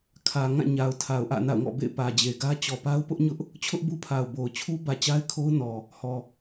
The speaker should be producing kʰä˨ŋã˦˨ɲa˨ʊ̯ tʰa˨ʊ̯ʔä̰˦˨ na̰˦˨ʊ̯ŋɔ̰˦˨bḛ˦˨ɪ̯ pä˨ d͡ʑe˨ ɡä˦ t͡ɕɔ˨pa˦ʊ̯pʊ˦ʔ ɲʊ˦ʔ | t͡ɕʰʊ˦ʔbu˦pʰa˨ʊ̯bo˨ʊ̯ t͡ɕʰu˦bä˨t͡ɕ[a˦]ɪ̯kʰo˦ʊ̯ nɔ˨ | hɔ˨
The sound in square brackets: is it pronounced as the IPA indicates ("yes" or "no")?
yes